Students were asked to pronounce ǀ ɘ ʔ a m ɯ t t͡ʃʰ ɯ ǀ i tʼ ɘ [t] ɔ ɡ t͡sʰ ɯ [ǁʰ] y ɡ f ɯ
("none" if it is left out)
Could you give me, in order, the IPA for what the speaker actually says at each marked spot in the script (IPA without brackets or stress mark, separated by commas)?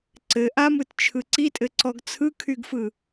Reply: ǀ, kʰ